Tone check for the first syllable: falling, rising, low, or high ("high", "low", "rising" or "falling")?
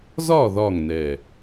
falling